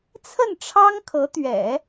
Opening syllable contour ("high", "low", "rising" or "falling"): falling